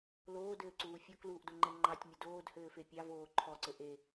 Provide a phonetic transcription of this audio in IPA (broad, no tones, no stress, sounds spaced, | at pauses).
l oː d ɘː ǀ uː fʲ ɔ k l uː ʔ d o ŋ͡ǃ ɛ ŋ͡ǃ ɑ tʲ mʲ ɘ d oː d h ɘː f e pʲ ɑ v oː ǃʰ ɔ ǀ ɘ ʔ e